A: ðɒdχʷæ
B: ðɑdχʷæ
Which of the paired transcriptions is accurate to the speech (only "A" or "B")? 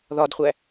A